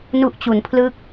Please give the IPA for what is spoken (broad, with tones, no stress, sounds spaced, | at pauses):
n u˦˥ ʔ t͡ɕ u˩˦ n pʰ l ɯ˦˥ k̚